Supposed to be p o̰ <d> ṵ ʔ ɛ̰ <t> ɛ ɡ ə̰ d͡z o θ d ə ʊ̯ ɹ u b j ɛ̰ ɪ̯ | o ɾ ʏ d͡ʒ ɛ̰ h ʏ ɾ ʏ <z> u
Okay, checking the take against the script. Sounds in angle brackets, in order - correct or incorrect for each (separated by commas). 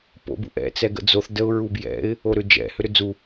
incorrect, incorrect, incorrect